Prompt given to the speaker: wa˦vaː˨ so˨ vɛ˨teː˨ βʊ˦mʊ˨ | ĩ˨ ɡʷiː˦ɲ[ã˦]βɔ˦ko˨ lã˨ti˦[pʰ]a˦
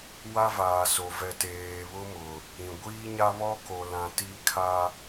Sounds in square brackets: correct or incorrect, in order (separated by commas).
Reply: incorrect, incorrect